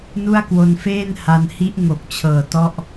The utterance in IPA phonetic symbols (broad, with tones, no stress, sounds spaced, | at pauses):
n u˥˩ a̯ k w o˧ n f eː˥˩ n h a˧ n h i˦˥ ʔ ŋ o˨˩ k̚ t͡ɕʰ ɤː˨˩ t ɔ˥˩ ʔ